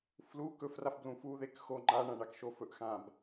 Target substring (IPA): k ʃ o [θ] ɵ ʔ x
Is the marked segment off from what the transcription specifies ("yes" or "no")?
yes